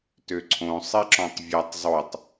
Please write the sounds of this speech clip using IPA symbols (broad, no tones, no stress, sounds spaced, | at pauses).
t ø ǀʰ õ sˤ i ǁ ɔ̃ tˤ vʲ a tˤ zˤ o tˤ